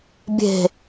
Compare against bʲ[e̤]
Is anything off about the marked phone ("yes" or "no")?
no